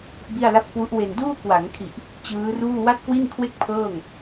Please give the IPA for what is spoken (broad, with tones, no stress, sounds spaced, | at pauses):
b i˥˩ a̯ l a˥˩ p̚ k w u˦˥ ʔ w e˧ n d uː˥˩ k w a˩˦ ŋ kʰ i˨˩ ʔ | t͡ɕ ɯː˦˥ r uː˥˩ w a˥˩ t̚ k w i˥˩ n kʰ w e˥˩ k̚ pʰ ɤː˥˩ ŋ